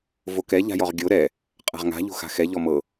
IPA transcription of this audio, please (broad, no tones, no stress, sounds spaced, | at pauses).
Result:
v o k ɛ ʎ a̤ j ɔ ʁ ɡʲ o ɾ ɛ | qʼ a̤ ʁ ŋ a̤ ʎ o̤ x a̤ x ɛ ʎ ɔ m ɤ